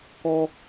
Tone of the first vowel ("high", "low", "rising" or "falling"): high